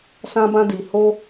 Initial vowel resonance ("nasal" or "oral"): nasal